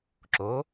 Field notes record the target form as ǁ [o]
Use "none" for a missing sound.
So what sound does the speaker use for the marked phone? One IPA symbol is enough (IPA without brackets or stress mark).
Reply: o